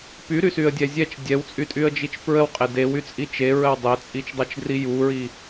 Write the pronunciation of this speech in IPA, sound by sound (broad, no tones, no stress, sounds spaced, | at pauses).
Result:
p y ɾ y s y ə̯ dʲ ɛ zʲ ɛ t͡ʃ dʲ ɛ w t͡sʼ y tʼ y ə̯ d͡ʒ i t͡ʃ p ɹ ə w qʼ e d e w y t͡sʼ i t͡ʃ e ɹ ə w dˤ ɛ t͡sʼ i t͡ʃ dˤ e t͡ʃ d r i j u ɹ i